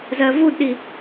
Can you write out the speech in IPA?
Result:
zɜvudɗi

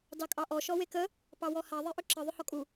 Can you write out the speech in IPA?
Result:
dɑkʼɑʔɔ ʃɔwekə | pɑwɔha ðˤeʔʏǁə ðˤʏhɔkʼu

